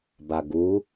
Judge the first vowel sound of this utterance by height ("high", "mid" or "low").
low